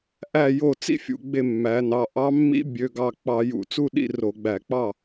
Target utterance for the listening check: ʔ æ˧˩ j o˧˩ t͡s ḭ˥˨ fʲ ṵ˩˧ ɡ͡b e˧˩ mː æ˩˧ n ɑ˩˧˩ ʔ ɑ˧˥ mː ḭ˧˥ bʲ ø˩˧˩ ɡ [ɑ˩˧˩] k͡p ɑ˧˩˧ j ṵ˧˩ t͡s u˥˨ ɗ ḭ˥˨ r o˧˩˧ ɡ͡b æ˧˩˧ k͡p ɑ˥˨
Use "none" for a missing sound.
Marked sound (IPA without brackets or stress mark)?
ɑ˧˩